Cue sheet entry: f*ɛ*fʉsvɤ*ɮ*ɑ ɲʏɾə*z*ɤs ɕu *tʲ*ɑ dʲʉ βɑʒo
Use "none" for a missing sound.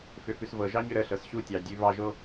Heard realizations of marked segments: ʏ, ʒ, ɬ, tʲ

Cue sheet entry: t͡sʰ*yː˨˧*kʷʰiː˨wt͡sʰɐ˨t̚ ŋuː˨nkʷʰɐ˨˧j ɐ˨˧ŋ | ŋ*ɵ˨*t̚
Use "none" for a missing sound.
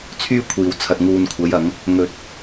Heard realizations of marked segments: yː˥, ɵ˨

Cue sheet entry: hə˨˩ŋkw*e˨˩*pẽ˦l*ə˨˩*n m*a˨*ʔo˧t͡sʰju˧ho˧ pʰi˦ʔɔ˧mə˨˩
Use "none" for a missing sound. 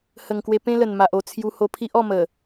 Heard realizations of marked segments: e˧, ə˨˩, a˨

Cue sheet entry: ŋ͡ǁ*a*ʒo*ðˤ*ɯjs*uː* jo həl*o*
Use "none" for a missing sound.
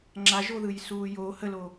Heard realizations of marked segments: a, ð, uː, o

